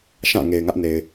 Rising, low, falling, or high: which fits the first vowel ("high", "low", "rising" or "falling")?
falling